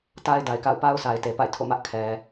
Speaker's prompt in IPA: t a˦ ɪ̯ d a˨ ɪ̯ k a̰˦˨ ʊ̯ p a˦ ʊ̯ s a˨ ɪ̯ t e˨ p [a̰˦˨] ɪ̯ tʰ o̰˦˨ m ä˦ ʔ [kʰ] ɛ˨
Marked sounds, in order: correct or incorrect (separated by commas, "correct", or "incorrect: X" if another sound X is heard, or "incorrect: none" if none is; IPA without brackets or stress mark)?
correct, correct